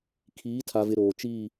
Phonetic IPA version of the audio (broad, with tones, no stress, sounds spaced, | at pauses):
kʰ iː˨˦ tʰ a˨ v ɪ˨ ɾ oː˨ t͡ʃ iː˦˨